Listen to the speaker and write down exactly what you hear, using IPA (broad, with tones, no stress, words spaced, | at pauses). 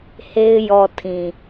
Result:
he˦ɪ̯ jɔ˨ tʰĩ˨